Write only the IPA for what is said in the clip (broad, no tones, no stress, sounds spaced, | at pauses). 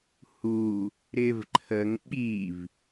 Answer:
h u | ɾ ɪ v ǃʰ ə ŋ ɓ i v